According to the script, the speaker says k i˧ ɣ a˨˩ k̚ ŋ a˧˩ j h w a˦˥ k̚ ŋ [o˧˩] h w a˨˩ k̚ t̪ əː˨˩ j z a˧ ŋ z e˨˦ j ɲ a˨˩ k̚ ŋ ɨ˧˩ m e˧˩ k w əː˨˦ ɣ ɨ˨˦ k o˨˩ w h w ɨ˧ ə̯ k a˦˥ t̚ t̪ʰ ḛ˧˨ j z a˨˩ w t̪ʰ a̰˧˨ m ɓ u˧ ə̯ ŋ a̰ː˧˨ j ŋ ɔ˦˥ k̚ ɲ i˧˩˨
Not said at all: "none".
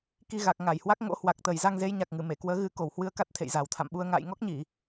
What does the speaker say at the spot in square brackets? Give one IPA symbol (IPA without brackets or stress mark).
o̰˧˥